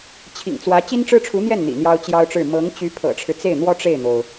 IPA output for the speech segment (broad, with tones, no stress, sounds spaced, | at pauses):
t͡ɕʰ ḭ˨˩ ŋ t͡s w ä˧˥ t͡ɕ i˥ n ʈ͡ʂ ɻ̩˥ ʈ͡ʂʰ u˧˥ n̪ j ɛ˥˩ n n̪ ḭ˨˩ n̪ j ɑ˥ ʊ̯ t͡ɕ j ɑ˥ ʊ̯ ʈ͡ʂ ɻ̩˥˩ m ɤ˧˥ ŋ t͡ɕ y˧˥ pʰ ɤ̰˨˩ ʈ͡ʂʰ ɻ̩˦ t͡s e˥˩ ɪ̯ n̪ w ɔ˥ ʈ͡ʂ e˥˩ ɪ̯ n̪ o˩ ʊ̯